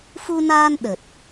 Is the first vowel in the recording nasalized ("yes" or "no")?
no